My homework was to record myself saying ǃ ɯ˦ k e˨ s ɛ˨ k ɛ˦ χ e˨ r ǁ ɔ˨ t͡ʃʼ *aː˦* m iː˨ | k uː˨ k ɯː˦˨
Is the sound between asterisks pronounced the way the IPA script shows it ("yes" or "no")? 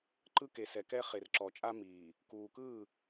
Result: no